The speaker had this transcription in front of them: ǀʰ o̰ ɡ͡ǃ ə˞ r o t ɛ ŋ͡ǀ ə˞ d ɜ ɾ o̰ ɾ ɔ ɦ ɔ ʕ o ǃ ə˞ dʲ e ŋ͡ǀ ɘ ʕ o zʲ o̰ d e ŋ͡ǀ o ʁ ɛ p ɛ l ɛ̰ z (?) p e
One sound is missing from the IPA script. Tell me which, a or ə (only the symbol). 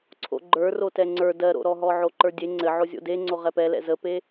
ə